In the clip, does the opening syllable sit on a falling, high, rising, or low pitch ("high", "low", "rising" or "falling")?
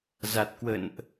low